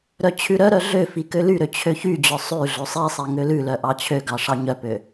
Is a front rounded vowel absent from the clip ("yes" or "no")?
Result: no